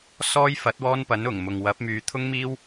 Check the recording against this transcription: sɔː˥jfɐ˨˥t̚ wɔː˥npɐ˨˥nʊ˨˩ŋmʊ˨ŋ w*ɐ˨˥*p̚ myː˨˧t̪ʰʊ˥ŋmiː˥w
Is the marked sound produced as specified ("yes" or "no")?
yes